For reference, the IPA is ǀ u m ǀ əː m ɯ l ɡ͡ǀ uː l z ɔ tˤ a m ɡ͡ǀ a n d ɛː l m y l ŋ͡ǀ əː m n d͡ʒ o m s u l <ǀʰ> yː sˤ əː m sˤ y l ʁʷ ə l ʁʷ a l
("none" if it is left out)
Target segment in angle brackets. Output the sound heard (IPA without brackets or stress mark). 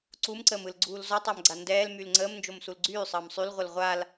ɡ͡ǀ